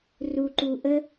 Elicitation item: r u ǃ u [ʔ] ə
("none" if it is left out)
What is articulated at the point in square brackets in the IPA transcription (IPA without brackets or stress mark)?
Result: ʔ